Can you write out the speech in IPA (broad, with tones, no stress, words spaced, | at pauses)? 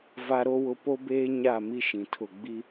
va˦ɾo˦wʊ˦ po˦beː˦ ɲa˦˨mi˦ ʃĩ˨tʰʊ˦˨ ɡ͡bi˦